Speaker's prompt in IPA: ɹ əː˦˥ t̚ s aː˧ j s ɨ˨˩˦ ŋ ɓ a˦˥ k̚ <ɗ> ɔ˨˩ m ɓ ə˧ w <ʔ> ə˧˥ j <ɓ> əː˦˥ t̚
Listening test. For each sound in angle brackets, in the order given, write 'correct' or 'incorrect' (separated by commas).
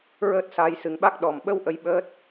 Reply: correct, correct, correct